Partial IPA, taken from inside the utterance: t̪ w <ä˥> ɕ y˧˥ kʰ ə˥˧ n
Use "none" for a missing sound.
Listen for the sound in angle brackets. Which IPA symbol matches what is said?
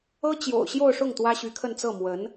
ä˥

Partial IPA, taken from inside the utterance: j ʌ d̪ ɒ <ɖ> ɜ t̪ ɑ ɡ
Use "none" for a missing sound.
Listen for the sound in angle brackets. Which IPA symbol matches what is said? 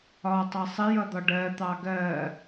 ɖ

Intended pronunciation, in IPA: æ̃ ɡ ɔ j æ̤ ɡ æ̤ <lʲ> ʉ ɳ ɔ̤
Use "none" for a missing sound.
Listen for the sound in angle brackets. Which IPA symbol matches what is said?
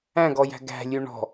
lʲ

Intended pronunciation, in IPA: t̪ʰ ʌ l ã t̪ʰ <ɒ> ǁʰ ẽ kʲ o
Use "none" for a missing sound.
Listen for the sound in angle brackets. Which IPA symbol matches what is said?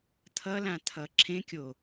ʌ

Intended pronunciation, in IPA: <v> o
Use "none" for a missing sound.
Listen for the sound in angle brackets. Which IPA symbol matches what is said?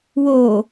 w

